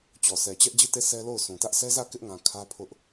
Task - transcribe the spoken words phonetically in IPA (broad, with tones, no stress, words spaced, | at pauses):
t͡ɕɔ˨sɛ˨t͡ɕɛ˦ʔ d͡ʑi˦˨te˦˨ sʰɛ˦lo˦˨ʊ̯sũ˨tä˦ʔ sɛ˦zä˦˨ kɪ˦ʔŋã˨ kʰä˦pʰʊ˦ʔ